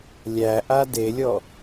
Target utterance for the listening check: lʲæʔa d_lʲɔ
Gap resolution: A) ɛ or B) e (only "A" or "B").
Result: B